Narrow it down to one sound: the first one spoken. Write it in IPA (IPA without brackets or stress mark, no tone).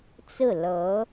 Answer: t͡s